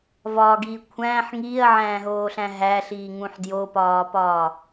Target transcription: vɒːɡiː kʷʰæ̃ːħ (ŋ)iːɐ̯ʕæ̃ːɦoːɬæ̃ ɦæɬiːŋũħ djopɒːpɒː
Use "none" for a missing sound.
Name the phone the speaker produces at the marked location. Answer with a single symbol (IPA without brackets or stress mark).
ŋ